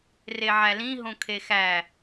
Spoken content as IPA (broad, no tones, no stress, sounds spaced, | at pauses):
r e ʕ æ l ĩ ɦ õ kʰ e x æ